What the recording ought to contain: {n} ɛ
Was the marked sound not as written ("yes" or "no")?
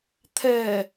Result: yes